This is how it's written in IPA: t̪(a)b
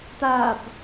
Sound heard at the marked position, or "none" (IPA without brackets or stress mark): a